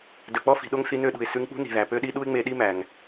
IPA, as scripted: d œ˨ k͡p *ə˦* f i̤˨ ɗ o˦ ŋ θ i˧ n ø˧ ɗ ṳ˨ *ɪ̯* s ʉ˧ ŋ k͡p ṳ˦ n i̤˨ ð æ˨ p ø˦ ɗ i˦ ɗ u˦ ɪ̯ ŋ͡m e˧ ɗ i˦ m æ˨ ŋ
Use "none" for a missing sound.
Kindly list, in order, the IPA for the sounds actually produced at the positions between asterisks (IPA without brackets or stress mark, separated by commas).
ɔ˦, ɪ̯